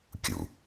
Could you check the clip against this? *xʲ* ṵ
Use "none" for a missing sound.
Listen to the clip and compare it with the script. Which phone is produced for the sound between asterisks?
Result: kʲ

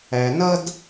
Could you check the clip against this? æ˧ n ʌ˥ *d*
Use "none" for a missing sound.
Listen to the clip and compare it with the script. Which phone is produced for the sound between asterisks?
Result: d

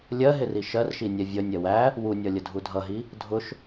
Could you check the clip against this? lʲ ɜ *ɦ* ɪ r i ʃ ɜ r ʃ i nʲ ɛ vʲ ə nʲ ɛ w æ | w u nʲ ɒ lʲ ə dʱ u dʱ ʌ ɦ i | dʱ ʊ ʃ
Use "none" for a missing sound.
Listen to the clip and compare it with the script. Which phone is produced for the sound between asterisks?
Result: ɦ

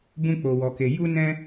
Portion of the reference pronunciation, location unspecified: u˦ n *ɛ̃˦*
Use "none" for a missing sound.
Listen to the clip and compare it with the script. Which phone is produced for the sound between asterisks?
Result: ɛ̃˦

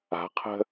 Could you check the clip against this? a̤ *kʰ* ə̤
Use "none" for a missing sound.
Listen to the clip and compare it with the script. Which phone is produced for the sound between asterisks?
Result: qʰ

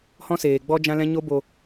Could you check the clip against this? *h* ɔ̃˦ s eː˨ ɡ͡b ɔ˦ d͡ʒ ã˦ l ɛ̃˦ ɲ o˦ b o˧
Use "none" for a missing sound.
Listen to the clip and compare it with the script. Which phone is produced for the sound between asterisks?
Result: h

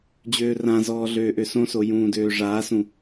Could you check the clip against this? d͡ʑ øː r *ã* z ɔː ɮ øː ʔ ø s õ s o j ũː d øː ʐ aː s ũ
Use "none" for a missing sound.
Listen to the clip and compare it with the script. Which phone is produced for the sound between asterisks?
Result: ã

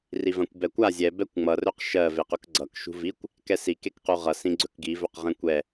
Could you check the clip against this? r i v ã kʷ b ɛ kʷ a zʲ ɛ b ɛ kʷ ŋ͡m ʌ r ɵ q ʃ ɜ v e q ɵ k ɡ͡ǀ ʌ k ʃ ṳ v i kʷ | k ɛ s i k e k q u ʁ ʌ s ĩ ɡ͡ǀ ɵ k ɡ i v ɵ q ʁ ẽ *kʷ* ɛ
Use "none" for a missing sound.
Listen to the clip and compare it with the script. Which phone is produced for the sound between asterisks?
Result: kʷ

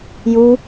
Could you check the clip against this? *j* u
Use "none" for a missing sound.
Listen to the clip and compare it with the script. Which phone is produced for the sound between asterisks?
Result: j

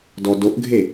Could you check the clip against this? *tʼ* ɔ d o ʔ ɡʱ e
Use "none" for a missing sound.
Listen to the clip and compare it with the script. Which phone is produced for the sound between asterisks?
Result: d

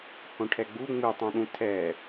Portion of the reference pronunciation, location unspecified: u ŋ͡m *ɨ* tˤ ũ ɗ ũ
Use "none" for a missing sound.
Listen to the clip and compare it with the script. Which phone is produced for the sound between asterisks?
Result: ɨ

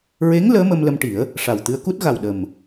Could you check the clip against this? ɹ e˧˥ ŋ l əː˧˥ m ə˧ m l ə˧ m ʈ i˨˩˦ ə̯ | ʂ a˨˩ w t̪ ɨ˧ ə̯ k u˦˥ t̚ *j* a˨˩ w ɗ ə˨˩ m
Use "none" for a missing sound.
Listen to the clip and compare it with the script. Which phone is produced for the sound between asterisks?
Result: ɣ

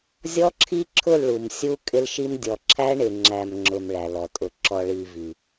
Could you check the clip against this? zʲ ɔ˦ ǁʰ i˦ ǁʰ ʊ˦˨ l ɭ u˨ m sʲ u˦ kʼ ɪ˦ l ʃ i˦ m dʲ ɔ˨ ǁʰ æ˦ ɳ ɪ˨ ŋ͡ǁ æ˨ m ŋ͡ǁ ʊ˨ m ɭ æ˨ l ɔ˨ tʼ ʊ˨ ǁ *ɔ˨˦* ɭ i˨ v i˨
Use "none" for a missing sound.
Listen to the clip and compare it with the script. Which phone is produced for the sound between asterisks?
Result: ɔ˨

